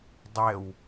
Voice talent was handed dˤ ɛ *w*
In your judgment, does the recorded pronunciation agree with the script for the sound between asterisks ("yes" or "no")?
yes